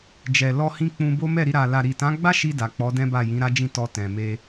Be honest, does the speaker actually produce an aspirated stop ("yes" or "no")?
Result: no